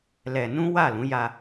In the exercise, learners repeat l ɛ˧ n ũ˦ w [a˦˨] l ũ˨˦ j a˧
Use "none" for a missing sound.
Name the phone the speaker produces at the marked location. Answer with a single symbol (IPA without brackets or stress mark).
a˦˨